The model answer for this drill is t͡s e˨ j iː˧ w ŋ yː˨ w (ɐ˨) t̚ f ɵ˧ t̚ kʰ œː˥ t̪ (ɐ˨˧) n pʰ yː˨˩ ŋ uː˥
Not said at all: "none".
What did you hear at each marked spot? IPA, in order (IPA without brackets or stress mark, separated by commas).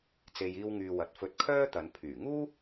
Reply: ɐ˨, ɐ˨˧